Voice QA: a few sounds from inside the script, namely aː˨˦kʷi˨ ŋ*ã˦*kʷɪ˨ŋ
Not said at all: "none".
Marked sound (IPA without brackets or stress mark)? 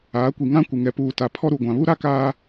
ã˦